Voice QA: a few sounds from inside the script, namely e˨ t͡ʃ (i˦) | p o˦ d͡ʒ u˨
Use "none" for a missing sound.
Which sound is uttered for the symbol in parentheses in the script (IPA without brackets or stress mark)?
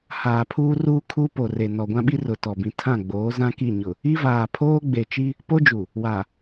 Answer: i˦